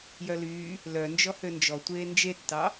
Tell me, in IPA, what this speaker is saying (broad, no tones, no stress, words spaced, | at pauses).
jœlyː | lœ nd͡ʒɔhønd͡ʒɔ tʷeːnd͡ʒetːɑ